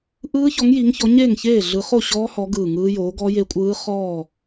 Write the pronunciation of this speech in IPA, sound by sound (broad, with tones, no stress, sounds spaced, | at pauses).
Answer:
ʔ ɯː˦˥ ç ɔ˨˦ ŋ j i˨˦ ŋ ç ɔ˨˦ ɲ eː˥˨ ŋ ç eː˥˨ ɮ ɯ˨˦ χ o˥˨ ɕ ɔː˦˥ h ɔ˨˦ ɡ ɯː˧˩ ŋ ɯː˦˥ j oː˨˦ ɡ ɔ˦˥ j e˦˥ kʷʼ ɯː˦˥ χ ɔː˥˨